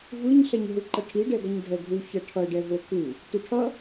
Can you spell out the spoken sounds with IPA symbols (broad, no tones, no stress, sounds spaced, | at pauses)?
v ɯ ɲ ɬ ɛ ɲ ɦ ɯ ǃ ʌ ʈʰ i ɖ ɛ ɡ ʌ ɲ dʱ ɛ ɡʱ u ç ʌ ʈʰ ʌ ɖ ɛ v o k ɯ | t u ʈʰ ʌ